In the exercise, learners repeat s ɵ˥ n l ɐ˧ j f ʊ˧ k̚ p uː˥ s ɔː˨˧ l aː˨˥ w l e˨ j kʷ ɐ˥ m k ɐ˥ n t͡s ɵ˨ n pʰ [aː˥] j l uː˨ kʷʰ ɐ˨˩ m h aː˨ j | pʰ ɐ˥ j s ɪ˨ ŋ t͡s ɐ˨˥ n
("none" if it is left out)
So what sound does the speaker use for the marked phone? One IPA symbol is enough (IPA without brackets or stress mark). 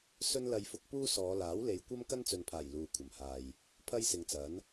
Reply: aː˨˩